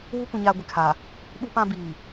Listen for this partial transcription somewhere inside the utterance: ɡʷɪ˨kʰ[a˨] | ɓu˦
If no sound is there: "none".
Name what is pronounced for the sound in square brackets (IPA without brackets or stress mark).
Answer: aː˨